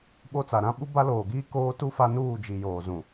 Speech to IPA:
ɓ o˦ t͡s a˨ ɾ ã˦ ɓ u˦ b a˦ l oː˨ ɡ iː˦ k oː˦ t u˦ f a˦ n uː˦˨ d͡ʒ i˨ j oː˨ z ũ˨

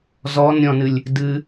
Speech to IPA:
z ɔ n ɾʲ ɔ̃ n ɨ lʲ | d ɨ

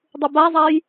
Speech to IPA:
dˤ u b a zˤ a j

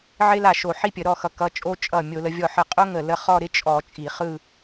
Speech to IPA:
ʕ ɪ˥ l a˥˩ ʃ o˧˩˧ ħ i˥ pʲ ə˧˩˧ ɾ ɔ˥˩ x ʌ˧˩˧ k ʌ˨˦ t͡ʃʼ o˥ t͡ʃʼ ʌ˥˩ mʲ o˧˩˧ l ə˨˦ vʲ ɔ˥˩ ħ ə˥˩ qʼ o˥ ŋ ə˥˩ l ə˥ χ ɔ˥˧ ɾ ɪ˥ t͡ʃʼ ɔ˧˩˧ t͡ʃʼ i˧˩˧ χ ɯ˥˧

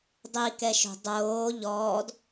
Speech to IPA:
dˤ i k ɛ ʃ o̤ dˤ oː ʎ ɔː d

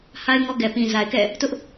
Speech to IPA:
h a˦ ɪ̯ ŋ ɔ˦ ɡ ɛ˨ p ĩ˨ z a˨ ɪ̯ k ɛ̰˦˨ | t ʊ˦ ʔ

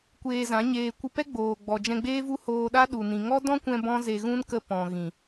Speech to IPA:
kʷ eː˧ z ã˨˦ ɲ eː˧ kʷ ɨ˧ p ɛ˦ ɡ͡b oː˨ ɡ͡b ɔ˨ d͡ʒ ɛ̃˧ ɡ͡b eː˦ v u˦ h oː˧ ɗ a˦ ɗ u˨ n ĩ˨ ŋ ɔ˦ d ɔ̃˦ kʷ ɛ̃˧ b ɔ̃˦ z e˧ ɣ ũ˦ n k ə˧ p ɔ̃˨ ɣ ĩ˨

